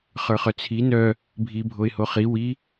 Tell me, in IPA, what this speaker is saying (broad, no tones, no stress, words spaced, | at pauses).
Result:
χə˞χœt͡sʰi nœ | bʱibʱoɪ̯ hoχi wi